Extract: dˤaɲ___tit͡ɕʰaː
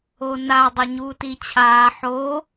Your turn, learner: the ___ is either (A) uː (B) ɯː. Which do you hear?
A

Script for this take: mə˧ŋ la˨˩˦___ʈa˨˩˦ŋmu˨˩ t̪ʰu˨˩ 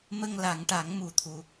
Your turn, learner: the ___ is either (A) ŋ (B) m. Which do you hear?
A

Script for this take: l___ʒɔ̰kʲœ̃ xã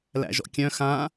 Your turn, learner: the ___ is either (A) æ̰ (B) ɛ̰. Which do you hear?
A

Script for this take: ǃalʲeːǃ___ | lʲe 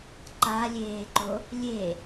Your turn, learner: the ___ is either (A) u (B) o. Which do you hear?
B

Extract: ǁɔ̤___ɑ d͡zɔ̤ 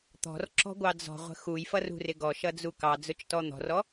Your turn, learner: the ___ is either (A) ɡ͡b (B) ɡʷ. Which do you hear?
B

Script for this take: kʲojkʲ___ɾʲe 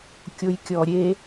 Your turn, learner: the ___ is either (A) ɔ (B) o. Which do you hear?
A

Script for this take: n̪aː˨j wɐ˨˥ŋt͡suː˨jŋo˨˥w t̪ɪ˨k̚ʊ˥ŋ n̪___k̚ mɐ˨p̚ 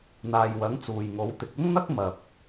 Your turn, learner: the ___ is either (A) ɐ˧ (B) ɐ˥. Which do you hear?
B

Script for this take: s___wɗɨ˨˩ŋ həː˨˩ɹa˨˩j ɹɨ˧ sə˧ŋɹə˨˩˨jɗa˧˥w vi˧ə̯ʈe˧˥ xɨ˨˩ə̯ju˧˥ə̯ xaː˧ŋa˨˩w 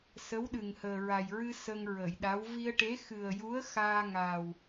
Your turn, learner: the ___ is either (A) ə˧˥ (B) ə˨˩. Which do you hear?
A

